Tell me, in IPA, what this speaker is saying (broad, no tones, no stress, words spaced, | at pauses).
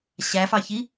ɕæfɑçi